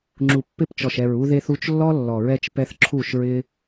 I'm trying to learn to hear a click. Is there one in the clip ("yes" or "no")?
yes